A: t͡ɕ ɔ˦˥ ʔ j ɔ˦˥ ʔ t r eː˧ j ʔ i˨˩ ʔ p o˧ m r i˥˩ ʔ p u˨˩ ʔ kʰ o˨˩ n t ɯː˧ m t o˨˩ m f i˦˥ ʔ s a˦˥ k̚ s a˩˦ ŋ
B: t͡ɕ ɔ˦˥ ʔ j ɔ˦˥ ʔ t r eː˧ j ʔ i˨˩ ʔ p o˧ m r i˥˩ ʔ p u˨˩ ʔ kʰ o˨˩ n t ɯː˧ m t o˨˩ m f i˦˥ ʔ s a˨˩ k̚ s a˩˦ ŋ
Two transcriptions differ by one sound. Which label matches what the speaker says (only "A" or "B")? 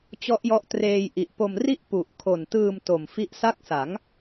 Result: A